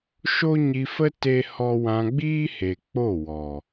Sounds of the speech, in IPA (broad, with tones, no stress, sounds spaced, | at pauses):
ʃ o˦ ɲ i˧ f ə˦ t e˦ h ɔ˦ w ã˧ ɡ͡b iː˦ h e˨ k͡p o˦˨ w ɔ˨